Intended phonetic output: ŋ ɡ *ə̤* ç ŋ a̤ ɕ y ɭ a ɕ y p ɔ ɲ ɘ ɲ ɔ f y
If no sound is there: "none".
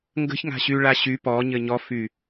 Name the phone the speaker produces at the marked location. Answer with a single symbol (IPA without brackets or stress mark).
ə̤